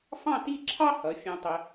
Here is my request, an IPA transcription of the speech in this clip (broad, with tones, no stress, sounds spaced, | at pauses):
f ɑ̃˥˧ t i˥˧ ǁʰ ɑ˥ h ʌ˩˧ fʲ ɑ̃˧ tˤ ə˧